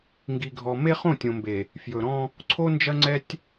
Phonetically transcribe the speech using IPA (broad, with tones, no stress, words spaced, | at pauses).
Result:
ŋɡi˨ɡʱɔ˨ me˦χõ˦˨tʲõ˨mbe˨ | fjɵ˨ɾɔ̃˦ | ǀʰo˦nd͡ʒɐ˦ŋ͡ǀɛ˦tʲ